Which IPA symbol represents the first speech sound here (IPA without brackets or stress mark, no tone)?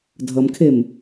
dʱ